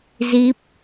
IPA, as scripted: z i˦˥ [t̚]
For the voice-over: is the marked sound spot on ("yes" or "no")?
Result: no